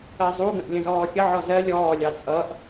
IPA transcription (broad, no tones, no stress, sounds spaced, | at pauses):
ɜ zˤ u ɡ ə̃ ʔ lʲ ə̃ z ɔː xʲ ə ʕ ɔ z ɜ lʲ ɔː lʲ ɑ t͡sʼ ʌ ʔ